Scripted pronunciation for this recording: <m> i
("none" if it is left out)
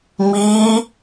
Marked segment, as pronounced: m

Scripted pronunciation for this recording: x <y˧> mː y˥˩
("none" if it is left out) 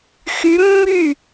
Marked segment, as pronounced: y˧˥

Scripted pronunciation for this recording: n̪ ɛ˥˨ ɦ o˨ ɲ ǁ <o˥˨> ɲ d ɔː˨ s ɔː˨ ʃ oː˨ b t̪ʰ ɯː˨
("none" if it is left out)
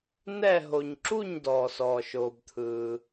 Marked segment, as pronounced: u˥˨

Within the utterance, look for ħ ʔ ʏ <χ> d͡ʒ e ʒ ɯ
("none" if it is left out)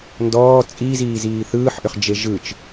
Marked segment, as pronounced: χ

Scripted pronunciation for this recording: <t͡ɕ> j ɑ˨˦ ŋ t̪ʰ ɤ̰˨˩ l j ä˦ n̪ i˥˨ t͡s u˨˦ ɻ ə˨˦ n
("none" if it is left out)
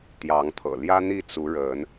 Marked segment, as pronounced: t̪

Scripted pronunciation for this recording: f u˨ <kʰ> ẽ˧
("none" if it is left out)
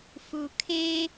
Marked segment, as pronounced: kʰ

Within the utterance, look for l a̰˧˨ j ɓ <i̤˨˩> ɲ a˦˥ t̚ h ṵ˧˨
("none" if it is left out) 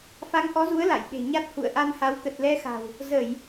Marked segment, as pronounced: e̤˨˩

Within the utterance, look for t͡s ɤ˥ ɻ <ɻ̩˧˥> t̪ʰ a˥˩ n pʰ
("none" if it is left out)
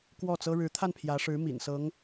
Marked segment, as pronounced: ɻ̩˧˥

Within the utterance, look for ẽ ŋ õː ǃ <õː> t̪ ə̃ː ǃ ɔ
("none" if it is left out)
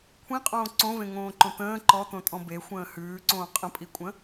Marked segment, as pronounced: õ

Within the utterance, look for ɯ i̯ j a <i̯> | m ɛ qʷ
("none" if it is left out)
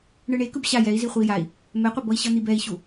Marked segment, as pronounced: i̯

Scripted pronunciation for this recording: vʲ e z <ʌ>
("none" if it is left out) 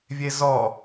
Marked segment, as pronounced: ɔ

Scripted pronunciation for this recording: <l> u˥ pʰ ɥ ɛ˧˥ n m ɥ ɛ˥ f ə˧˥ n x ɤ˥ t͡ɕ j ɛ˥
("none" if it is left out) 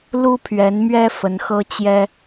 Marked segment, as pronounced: l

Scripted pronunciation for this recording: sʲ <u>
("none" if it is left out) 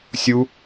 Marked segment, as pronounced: u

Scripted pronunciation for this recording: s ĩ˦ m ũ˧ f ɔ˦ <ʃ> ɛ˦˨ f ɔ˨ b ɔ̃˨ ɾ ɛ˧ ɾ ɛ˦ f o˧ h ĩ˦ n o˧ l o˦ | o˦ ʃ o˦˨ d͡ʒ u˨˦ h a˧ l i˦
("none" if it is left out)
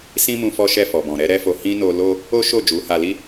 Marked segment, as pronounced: ʃ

